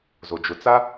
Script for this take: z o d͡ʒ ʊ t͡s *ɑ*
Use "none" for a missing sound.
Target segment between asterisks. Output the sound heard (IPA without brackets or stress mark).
a